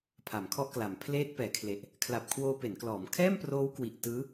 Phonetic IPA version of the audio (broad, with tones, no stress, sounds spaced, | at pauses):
pʰ a˩˦ m kʰ ɔ˥˩ ʔ k l a˩˦ m pʰ l eː˦˥ t̚ p ɛː˩˦ kʰ l e˨˩ ʔ | kʰ l a˨˩ p̚ kʰ w oː˧ p e˩˦ n k l ɔː˩˦ m kʰ ɛː˥˩ m p r oː˦˥ w k w i˨˩ ʔ t ɯː˦˥